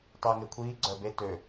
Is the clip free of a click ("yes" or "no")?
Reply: no